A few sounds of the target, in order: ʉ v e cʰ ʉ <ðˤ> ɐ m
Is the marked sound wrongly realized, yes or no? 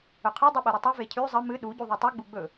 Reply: yes